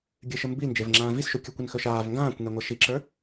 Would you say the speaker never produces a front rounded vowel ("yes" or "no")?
yes